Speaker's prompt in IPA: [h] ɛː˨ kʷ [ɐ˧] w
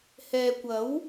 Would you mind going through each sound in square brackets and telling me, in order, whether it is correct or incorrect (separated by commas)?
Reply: correct, incorrect